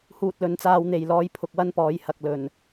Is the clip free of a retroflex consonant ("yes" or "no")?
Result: yes